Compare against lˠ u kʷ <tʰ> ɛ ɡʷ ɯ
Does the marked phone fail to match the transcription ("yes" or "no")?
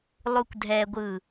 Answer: yes